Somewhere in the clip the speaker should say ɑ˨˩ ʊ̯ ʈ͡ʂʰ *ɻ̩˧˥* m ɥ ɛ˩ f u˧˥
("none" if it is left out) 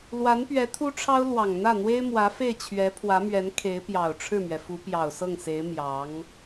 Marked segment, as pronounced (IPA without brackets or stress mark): ɻ̩˥˩